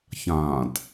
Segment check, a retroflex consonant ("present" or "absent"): absent